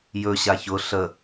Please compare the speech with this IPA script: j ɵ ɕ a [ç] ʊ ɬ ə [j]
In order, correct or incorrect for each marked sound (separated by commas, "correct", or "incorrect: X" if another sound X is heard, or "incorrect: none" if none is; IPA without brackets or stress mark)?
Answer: correct, incorrect: none